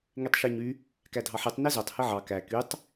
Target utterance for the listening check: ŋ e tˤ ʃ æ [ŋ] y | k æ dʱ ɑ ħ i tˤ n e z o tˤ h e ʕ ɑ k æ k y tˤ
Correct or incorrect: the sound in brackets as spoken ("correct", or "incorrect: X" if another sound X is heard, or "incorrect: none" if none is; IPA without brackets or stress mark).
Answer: incorrect: ɲ